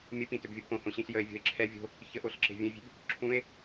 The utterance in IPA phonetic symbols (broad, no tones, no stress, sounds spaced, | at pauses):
mʲ ə p ĩ t ø b vʲ o b p õ h õ ɕ ĩ ɬ j ə e̯ vʲ ɔ̤ e̯ ǁʰ ɛ vʲ o̤ | ç ə ʔ o ɬ ǁ e̤ vʲ ə̃ e̯ vʲ e̤ b | ǁʰ ũ e̯